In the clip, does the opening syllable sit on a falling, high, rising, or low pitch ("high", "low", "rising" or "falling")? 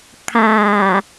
low